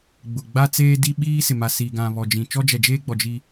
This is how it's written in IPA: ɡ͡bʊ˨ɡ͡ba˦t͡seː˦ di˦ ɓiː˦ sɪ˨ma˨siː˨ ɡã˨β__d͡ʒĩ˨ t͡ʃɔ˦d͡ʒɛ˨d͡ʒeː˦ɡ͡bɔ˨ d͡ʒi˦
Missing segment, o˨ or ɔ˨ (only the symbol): ɔ˨